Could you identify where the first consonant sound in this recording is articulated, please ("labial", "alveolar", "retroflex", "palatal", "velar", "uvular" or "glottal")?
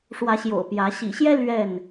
retroflex